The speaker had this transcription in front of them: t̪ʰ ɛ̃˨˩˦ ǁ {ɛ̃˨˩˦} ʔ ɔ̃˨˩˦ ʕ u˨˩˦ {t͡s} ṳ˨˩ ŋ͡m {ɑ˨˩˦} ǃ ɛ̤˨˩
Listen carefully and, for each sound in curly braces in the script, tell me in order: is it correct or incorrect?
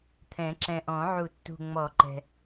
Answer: incorrect: ɛ̃˨˩, incorrect: tː, incorrect: ɔ˨˩˦

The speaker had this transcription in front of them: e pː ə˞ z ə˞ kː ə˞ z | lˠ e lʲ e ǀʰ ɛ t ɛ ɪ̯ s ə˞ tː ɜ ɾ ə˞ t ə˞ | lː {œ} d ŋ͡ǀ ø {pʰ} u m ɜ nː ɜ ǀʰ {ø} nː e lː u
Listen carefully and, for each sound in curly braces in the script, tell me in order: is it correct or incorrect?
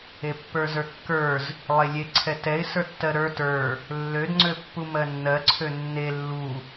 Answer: incorrect: ø, incorrect: pː, correct

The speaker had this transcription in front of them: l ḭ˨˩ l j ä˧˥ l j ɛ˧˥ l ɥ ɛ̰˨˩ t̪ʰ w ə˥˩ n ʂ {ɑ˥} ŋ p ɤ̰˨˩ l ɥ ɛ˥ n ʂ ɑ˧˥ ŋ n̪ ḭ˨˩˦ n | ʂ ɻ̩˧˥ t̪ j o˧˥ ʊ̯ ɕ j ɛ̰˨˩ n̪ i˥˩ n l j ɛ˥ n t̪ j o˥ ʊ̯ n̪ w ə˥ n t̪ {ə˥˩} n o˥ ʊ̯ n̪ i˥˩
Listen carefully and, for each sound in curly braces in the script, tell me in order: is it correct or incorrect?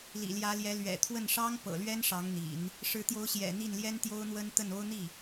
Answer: correct, correct

